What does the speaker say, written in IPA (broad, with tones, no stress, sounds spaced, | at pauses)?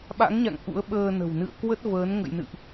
ɓ a̰˧˥ ŋ ɲ a̰˧˨ ŋ ʔ ṵ˧˥ ə̯ ɓ əː˧ n ə̤˨˩ w n ɨ̰˧˨ ə̯ k w ə˦˥ t̚ v əː˨˦ n ŋ ə̰˧˨ j n ɨ̰˧˨ ʔ